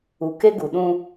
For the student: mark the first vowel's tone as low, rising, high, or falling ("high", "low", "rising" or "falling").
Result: low